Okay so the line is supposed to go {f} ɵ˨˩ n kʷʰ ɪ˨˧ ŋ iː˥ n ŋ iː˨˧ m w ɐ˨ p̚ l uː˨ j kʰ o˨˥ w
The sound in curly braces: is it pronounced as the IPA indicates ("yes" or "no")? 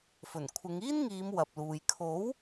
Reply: yes